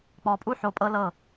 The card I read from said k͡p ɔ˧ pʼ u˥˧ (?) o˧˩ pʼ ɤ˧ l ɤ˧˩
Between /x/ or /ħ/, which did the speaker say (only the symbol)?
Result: ħ